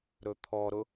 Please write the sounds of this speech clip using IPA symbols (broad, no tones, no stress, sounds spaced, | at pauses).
ɾ ɵ t̪ʰ ɔ ɾ ʊ